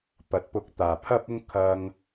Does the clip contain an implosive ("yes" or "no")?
no